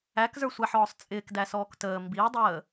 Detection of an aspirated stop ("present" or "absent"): absent